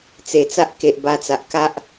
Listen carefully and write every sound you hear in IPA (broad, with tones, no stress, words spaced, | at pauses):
t͡se˨˩t͡sa˦ʔke˨ʔ ba˧t͡sa˨ʔka˦ʔ